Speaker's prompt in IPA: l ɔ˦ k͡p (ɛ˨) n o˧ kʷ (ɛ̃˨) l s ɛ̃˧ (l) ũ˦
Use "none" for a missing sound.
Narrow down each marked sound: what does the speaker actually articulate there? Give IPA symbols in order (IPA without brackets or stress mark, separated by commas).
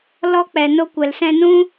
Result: ɛ˨, ɛ˨, n